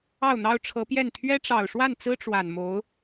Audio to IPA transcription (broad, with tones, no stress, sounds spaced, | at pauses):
ɑ˥˩ ʊ̯ n̪ ɑ˥ ʊ̯ ʈ͡ʂʰ ɤ˧˥ p j ɛ˥˩ n t̪ʰ ɥ ɛ˥ ʈ͡ʂ ɑ˨˩ ʊ̯ ʂ w a˥˩ n t͡s ɹ̩˥ ʈ͡ʂ w a˨˩ n m o˧˥ ʊ̯